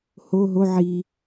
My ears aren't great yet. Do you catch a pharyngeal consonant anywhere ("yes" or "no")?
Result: yes